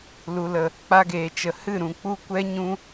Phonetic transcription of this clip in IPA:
l u˨ l ə˨ | k͡p a˧ ɡ eː˨ t͡ʃ ə˨ h ɨ˦˨ ɾ ũ˨ k͡p u˦ kʷ ɛ˦ ɲ ũ˧

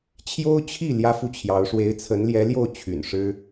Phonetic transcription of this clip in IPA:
t͡ɕʰ j o˥ ʊ̯ t͡ɕʰ i˥˩ l j ä˥ f u˥˩ t͡ɕʰ j ɑ˧˥ ʊ̯ ʂ w e˧˥ ɪ̯ t͡sʰ ə˧˥ n l j ɛ˧˥ l j o˥˩ ʊ̯ t͡ɕʰ y̰˨˩ n ʂ ɻ̩˥

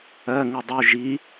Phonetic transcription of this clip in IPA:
ɜ ŋ u dˤ u ʒ i

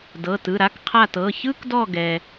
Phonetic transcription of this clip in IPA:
d ɤ˩˧˩ t ɯ˩˧˩ ɾ a˥ k qʰ a˦˨ t ɤ˩˧˩ ç ɯ˥ k d ɔ˦˨ ɡ ɛ˩

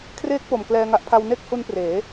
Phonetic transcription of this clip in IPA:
kʰ r eː˦˥ k̚ p o˨˩ m k l ɛː˧ ŋ a˦˥ ʔ pʰ a˧ w n e˥˩ k̚ h u˦˥ n p r eː˩˦

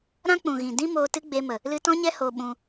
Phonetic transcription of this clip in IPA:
ɾ ã˦ k͡p ũ˨ ɣ ĩ˨ d ĩ˦ m oː˧ t ɨ˦ ɡ͡b e˧ m ə˨ | l ɨ˧ t ɔ̃˦ ɲ ɛ˦ h o˧ ɓ ũ˧

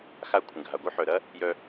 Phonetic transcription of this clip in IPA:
x a˧ kʷʰ ə̃˨ ɡʱ a˨ ɡʷ œ˦ ħ œ˨ ɾ ɐ˦ | j œ˧

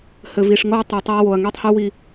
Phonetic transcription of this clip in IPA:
h ɘ˨ v i˨ ʂ ŋ o˦ ɐ̯ tˤ i˨ tˤ i˦ ɐ̯ w o˨ ɐ̯ ŋ i˦ tˤ h u˦ w i˦

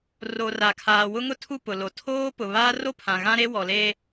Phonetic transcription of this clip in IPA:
r o˨ r a˨ kʰ aː˨ w ʊ˦ ŋ ʊ˦ tʰ u˦˨ p ʊ˨ l o˨ tʰ oː˦ p ʊ˨ β aː˦ r o˦ pʰ ã˨ ɣ ã˦ ɾ e˦ w ɔ˨ l e˦

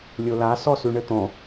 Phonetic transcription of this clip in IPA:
lʲ o l a s ɔ s ʉ ɳ ɘ t̪ ɔ̃

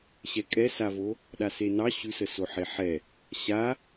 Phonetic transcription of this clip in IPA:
ɕ ɛ kʼ ɛ s a v o | ɗ a s e n ɑ ɕ ʉ s ə s o ħ e ħ ɛ | ɕ a

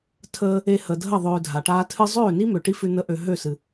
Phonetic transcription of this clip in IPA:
tʰ əː˦ | e˧ h ə˨ dʱ ə˦˨ ðˤ øː˧ dʱ a˨ ʈ aː˦ tʰ ɨ˦ zˤ øː˦˨ n i˦ m ø˨ ʈ i˦ f ʉ˧ n ə˧ ʔ ø˨ ɦ ø˦˨ s ɨ˨

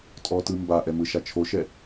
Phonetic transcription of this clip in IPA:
tʼ ɔ t ɯ m b a ʔ ɛ m ɯ ʃ a t͡ʃʰ o ʃ ɛ

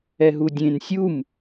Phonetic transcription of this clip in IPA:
ɛ ɦ u dʲ ẽ n sʲ u m

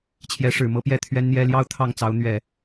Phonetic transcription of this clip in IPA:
t͡ɕʰ j ɛ˧˥ ʂ ɻ̩˨˩ m ɤ˥ p j ɛ˥˩ t̪ʰ ɥ ɛ˥ n n̪ j ɛ˥ l j ɑ˥ ʊ̯ t̪ʰ ɑ˥˩ ŋ t͡s ɑ˧˥ ʊ̯ n̪ ɥ ɛ˨˩˦

